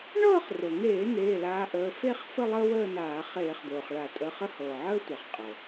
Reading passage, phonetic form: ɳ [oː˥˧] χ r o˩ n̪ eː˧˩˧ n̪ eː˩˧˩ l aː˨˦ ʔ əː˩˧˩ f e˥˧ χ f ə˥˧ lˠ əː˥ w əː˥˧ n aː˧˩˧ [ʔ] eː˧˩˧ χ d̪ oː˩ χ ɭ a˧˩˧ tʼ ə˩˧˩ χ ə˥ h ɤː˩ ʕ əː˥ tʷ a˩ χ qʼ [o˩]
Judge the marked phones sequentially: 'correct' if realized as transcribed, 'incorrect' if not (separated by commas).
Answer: incorrect, incorrect, incorrect